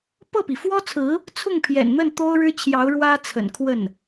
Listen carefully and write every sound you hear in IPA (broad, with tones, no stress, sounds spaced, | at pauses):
p ɤ˥˩ p i˩ f w ɔ˥ t͡sʰ ɹ̩˧˥ | t͡sʰ ʊ˥˩ ŋ pʰ j ɛ̰˨˩ n n̪ ə˥˩ n t̪ o˥ ʊ̯ ɻ ɻ̩˥ t͡ɕʰ j ɑ˧˥ ʊ̯ ɻ w ä˥ t͡sʰ ə̰˨˩ n kʰ w ə˥˩ n